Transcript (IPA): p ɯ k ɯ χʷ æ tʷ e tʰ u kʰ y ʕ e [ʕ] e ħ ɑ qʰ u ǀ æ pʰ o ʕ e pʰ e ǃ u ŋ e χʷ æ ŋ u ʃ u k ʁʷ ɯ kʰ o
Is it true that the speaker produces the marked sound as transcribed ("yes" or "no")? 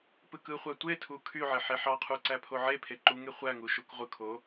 no